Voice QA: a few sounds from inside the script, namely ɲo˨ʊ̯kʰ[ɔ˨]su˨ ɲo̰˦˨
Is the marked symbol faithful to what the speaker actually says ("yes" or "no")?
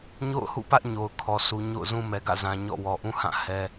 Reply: yes